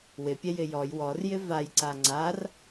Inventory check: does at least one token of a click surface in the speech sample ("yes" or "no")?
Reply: yes